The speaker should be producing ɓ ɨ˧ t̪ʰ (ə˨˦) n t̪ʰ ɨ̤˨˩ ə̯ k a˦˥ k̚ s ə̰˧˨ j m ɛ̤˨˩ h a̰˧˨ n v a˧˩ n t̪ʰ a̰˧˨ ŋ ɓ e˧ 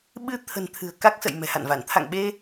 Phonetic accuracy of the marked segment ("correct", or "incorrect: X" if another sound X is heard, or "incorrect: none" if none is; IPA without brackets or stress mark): incorrect: ə̤˨˩